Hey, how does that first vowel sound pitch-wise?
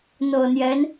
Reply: low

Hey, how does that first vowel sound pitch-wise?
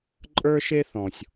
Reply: high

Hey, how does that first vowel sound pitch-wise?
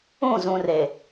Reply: falling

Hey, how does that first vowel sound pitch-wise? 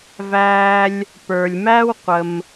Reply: high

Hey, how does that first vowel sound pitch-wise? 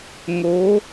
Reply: rising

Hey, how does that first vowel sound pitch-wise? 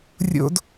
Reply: high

